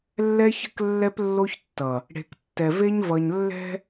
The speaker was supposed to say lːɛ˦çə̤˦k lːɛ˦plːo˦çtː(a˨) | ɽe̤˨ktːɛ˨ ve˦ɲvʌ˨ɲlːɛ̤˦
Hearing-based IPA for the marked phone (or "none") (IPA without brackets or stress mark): ʌ˨